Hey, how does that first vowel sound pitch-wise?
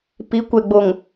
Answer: rising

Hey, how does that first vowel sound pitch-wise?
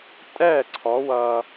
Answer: falling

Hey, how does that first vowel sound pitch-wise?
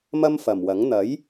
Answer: high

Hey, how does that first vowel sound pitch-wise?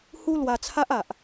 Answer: high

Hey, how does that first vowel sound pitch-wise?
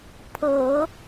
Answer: low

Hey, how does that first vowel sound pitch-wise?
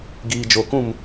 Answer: low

